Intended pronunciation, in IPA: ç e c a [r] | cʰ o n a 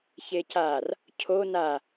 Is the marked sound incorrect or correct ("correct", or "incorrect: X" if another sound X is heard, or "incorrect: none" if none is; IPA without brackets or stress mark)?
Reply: correct